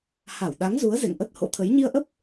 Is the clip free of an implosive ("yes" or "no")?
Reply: no